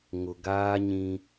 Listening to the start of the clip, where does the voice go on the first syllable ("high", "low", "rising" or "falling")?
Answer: low